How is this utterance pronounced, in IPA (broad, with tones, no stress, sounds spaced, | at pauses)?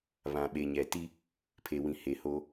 β ã˨ ɓ e˨ ɲ ɛ˨ t i˦ | pʰ e˨ w ĩ˨ h e˨ h o˦